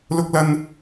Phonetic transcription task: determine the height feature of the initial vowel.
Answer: high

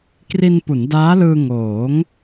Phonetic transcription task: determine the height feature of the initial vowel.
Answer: high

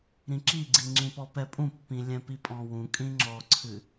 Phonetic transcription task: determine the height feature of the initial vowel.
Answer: high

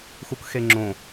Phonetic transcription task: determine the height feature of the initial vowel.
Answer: high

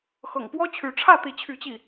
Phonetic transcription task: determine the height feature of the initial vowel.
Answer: mid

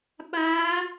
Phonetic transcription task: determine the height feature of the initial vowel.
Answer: low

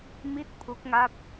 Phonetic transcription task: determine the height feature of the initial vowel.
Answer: high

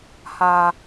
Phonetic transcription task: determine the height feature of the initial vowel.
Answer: low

